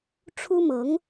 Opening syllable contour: high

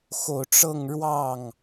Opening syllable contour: low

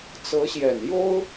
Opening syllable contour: rising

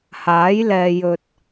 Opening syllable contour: rising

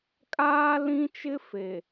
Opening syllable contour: high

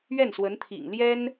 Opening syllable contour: falling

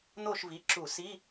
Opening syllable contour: falling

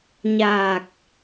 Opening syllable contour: low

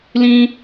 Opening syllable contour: high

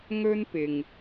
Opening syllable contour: high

